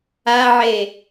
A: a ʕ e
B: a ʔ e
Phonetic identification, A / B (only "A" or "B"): A